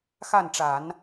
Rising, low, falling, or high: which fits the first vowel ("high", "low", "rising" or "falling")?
falling